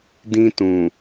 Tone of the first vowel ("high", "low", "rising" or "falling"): high